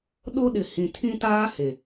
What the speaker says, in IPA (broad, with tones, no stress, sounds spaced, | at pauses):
ɗ o˦ ɗ ɪ˨ h ĩ˨ tʰ ĩ˦ t aː˦ h e˨